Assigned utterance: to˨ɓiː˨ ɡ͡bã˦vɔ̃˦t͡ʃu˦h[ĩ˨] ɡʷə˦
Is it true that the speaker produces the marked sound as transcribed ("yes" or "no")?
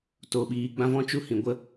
yes